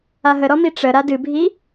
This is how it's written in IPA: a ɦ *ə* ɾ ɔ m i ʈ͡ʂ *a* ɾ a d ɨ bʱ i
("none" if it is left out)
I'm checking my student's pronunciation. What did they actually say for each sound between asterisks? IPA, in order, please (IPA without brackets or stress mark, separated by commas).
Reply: ə, ə